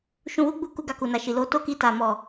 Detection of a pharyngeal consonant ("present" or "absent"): absent